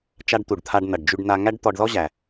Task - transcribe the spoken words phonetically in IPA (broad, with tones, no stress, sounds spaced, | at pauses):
t͡ʃ a˧ ɖ t̪ u˩ ɖ t̪ʰ a˧ ɖ n ʌ˩ ɖ d͡ʒ y˧ ɖ n a˧ ŋ æ˥ ɖ t̪ ɔ˧ ɖ ð ɔ˥ ʑ æ˩